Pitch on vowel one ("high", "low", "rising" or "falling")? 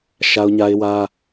high